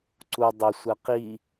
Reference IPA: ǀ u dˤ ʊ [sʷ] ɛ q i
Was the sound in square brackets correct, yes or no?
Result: yes